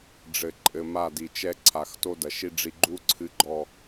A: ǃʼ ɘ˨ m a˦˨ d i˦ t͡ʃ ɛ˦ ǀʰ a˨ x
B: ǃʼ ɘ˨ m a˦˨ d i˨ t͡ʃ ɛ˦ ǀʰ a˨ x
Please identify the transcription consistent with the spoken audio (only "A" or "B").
B